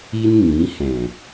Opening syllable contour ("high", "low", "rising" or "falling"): high